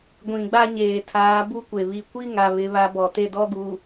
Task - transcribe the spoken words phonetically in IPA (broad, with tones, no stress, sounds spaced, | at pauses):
ɡʷ ĩ˨ ɡ͡b a˦ ɲ eː˨ tʰ aː˨˦ b u˦ kʷ e˨ β i˨ kʷ i˦ ŋ a˨ β ɪ˦ β a˦ b ɔ˨ t e˦ d ɔ˦ ɡ u˨